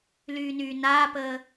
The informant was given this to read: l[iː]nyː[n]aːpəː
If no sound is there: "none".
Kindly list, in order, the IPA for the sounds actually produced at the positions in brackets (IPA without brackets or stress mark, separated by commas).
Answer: yː, n